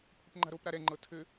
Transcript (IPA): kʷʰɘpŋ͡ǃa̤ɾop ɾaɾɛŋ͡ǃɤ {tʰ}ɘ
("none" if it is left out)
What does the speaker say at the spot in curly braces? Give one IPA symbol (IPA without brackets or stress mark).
tʰ